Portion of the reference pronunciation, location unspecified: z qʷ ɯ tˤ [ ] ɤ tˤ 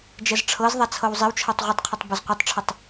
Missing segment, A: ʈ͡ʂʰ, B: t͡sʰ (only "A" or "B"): A